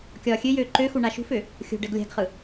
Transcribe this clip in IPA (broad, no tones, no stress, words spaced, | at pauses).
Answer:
kʲɒːxʲøjøː ǃøxu ɳaʃṳfø | xʲo̤ɖɛɡ lʲa̤ɡχɯ